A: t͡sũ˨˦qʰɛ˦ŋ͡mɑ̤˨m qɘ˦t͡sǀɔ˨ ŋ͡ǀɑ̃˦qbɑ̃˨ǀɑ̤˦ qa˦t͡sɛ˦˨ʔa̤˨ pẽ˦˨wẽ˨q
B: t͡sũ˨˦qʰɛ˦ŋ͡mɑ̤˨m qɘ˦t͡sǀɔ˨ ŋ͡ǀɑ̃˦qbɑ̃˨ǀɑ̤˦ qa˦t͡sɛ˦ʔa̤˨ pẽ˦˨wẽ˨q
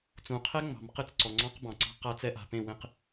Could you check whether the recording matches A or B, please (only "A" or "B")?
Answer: B